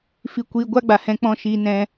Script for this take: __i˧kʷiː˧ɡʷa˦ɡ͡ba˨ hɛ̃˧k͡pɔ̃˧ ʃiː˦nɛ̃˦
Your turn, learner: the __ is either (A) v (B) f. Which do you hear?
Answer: B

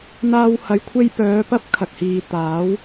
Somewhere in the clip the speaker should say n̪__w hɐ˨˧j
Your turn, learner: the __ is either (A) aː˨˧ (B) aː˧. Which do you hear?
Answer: B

